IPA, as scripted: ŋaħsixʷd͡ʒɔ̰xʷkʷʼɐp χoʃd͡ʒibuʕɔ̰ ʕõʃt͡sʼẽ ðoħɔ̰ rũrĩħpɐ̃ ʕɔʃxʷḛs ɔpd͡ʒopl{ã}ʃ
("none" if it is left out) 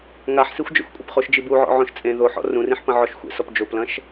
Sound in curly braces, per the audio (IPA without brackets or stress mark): ɐ̃